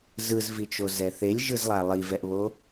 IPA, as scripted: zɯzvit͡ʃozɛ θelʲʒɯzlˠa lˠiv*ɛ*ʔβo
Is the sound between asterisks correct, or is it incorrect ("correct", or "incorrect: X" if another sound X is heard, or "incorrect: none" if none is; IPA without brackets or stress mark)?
correct